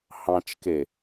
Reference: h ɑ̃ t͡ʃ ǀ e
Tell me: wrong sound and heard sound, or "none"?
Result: ǀ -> k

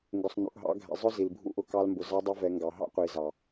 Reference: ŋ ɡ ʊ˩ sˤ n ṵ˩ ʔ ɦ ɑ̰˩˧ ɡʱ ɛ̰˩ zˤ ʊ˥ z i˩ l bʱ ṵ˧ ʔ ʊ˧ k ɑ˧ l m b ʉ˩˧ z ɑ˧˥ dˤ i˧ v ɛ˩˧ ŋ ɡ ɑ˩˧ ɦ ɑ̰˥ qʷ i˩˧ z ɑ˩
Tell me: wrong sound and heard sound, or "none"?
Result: ʉ˩˧ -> ʊ˩˧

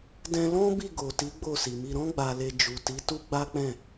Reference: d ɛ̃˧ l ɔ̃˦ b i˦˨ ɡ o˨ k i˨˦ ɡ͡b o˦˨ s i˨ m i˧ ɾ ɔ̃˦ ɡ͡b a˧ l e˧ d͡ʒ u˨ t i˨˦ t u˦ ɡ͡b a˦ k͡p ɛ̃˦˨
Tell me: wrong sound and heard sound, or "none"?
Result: k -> t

